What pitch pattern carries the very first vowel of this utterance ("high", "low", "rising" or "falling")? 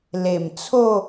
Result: low